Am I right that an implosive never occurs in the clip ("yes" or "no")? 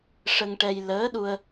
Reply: no